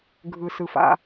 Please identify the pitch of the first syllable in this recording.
low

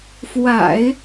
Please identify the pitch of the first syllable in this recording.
low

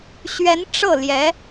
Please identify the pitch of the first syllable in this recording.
rising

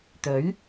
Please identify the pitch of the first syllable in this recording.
rising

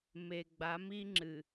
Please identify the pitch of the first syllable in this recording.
low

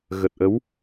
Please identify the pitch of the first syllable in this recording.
low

